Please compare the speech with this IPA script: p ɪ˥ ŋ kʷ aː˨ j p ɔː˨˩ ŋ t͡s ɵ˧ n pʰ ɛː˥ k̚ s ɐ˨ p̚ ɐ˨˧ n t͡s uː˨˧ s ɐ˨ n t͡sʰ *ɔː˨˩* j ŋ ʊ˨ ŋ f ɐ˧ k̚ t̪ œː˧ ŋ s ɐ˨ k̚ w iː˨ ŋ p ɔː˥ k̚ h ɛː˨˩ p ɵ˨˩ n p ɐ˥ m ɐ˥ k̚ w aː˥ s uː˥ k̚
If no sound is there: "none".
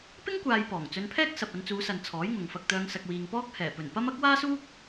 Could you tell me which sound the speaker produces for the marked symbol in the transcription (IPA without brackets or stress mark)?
ɔː˨˥